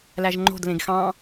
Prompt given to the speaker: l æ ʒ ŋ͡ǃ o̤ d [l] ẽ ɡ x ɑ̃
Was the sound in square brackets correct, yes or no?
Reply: yes